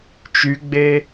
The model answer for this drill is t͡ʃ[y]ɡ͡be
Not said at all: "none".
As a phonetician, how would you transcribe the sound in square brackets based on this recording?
y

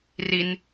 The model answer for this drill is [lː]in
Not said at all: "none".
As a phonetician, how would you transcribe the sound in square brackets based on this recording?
r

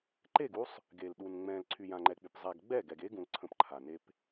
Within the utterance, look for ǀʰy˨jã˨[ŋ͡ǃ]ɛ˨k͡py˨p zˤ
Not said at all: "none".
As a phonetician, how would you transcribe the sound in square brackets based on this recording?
ŋ͡ǃ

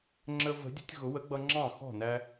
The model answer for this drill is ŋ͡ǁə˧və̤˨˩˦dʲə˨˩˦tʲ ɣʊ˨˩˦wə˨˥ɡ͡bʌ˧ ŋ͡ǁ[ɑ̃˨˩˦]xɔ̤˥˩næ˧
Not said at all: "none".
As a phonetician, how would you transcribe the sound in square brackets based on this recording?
ɑ̃˥˩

